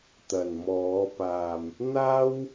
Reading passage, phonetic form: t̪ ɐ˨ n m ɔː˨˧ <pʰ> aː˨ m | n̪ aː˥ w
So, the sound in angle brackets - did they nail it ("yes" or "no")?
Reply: no